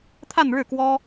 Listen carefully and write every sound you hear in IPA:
t̪ʰ a˥˧ n ɻ ɻ̩˥˩ k w ɔ˥

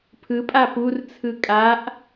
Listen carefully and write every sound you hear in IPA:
pʰ ɯ pʼ a p u r t͡sʰ ɯ kʼ a ʔ

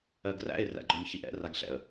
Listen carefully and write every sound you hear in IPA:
ɜ ɡ r æ̰ ɪ̯ r æ̰ ɡ͡ǃ ɔ ɲ ç i ʔ ɛ̰ r a ɡ ɬ ɛ̰ ə̯

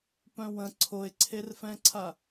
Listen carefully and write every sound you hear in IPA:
p œ̃ w ə̃ ǀʰ o ɪ̯ ǀʰ e r f ɛ̃ ǀʰ a

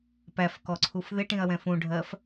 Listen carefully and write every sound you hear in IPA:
p æ f k ɔ ǀʰ u f ð ɪ ʈ ĩ ɐ̯ w ɛ̃ f ũ ɖʱ ɜ f

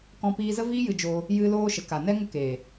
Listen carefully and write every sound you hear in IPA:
k ɔ̃˧ p iː˧ z ə˦ v iː˦ j ɨ˧ d͡ʒ oː˧ | j ɨ˧ l oː˧ ʃ ə˨ k a˨ n ɛ˦ ŋ ə˦ k eː˨

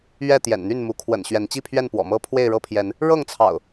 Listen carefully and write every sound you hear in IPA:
ɥ ɛ˥˨ t̪ j ɛ̰˨˩ n n̪ y˥˨ n m u˨˦ kʰ w ə̰˨˩ n ɕ ɥ ɛ˨˦ n t͡ɕ i˥˨ pʰ ɥ ɛ˥˨ n p w ɔ̰˨˩ m ɤ˦ pʰ w e˥˨ ɪ̯ ɻ ɤ˥˨ pʰ j ɛ˨˦ n | ɻ ɤ˥˨ ŋ t͡sʰ ɑ̰˨˩ ʊ̯

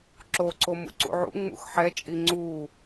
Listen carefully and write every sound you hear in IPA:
ǁ o ǀ o m ṵ ǀ ṵ ʕ ṵ ŋ͡m ṵ x ħ ɛ t͡ʃʼ i ŋ͡ǀ u

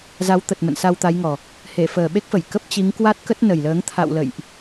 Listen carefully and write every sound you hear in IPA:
z a˨˦ w t̪ ə˨˩ t̚ m ə̰˧˨ n s a˧ w t̪ a˨˦ j ŋ ɔ˨˩ | h e˧˩ f əː˨˩ ɓ e˦˥ k̚ f ə˧˩ j k ə˦˥ p̚ t͡ɕ i˨˦ ŋ k w a˦˥ t̚ k ə˦˥ t̚ n ə˨˩ j l əː˨˦ ŋ t̪ʰ a̰˧˨ w l ə̰˧˨ j ʔ

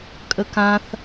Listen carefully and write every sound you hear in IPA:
kʼ ə k ã θ

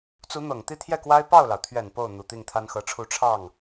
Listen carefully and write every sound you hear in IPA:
t͡s u˧˥ n̪ ɤ˨˩ ŋ t̪ i˥˧ t̪ʰ j ɛ˥˩ k w a˥ ɪ̯ p ɑ˥˩ ʊ̯ l ɑ˩ ʊ̯ t̪ʰ ɥ ɛ˨˩ n p o˥˩ ʊ̯ n̪ u˨˩ t̪ i˥˩ ŋ t̪ʰ a˥ n x ɤ˧˥ ʈ͡ʂʰ u˥˧ ʈ͡ʂʰ ɑ˥˩ ŋ

